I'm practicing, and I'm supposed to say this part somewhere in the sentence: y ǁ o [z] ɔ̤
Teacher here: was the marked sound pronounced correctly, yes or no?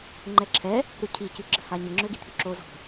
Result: yes